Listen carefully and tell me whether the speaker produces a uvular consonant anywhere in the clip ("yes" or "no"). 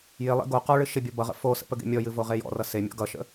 yes